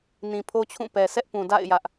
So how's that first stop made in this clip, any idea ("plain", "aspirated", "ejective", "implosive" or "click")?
aspirated